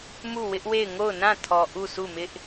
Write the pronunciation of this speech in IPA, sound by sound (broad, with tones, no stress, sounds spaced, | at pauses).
m u˦˨ w ɪ˦ ʔ w e˦˨ ɪ̯ ŋ o˦˨ ʊ̯ n ã˦˨ tʰ ɔ˨ ʔ u˦˨ sʰ u˦˨ m ɪ˦ ʔ